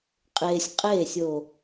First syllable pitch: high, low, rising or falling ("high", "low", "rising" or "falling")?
low